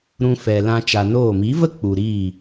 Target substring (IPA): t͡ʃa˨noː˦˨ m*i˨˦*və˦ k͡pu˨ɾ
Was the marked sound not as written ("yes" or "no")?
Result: no